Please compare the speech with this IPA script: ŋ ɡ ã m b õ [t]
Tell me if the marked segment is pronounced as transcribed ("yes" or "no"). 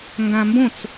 no